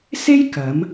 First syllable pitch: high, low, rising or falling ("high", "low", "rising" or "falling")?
high